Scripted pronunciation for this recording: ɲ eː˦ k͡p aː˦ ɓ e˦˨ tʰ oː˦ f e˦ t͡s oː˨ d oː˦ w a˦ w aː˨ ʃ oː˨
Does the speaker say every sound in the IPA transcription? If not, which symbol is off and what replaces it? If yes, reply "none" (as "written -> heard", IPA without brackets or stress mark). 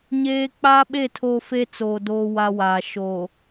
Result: none